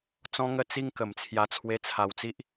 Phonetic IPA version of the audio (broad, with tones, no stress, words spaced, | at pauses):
t͡sɔ̃˦ŋə˦ t͡si˧ŋ kə˨˩m t͡sʰja˧t͡sʰwe˧t͡sʰa˧wt͡si˦ʔ